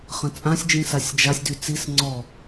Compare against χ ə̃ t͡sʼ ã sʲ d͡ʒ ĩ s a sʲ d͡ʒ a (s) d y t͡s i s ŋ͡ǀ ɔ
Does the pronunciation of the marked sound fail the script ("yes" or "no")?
yes